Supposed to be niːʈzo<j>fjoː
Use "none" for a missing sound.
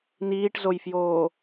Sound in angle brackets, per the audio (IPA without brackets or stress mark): j